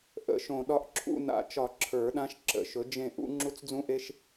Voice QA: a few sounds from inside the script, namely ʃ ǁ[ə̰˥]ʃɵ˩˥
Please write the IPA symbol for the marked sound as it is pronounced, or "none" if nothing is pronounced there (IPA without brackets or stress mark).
ə̰˨˩˦